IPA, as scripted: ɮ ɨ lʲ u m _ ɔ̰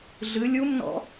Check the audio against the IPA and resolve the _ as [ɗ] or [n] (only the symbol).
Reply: n